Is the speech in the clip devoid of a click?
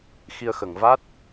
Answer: yes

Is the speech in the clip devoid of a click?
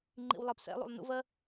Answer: no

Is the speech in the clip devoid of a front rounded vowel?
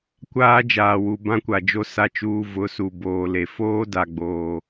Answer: yes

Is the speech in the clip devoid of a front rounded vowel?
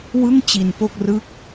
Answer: yes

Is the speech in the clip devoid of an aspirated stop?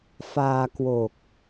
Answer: yes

